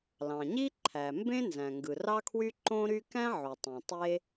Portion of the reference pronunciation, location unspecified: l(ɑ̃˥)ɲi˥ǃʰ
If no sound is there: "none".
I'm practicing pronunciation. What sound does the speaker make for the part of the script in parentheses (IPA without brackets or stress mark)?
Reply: ɑ̃˩